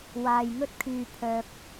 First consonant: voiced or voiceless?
voiced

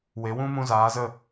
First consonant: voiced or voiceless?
voiced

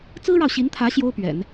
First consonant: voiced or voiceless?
voiceless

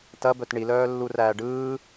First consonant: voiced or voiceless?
voiceless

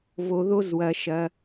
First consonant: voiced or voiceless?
voiced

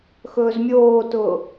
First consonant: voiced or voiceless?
voiceless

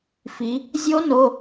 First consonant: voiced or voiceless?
voiceless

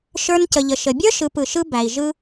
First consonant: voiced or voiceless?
voiceless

